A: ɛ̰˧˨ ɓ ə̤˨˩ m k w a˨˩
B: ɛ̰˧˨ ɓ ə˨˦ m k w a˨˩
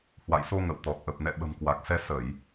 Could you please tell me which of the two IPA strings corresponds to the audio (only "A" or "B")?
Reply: A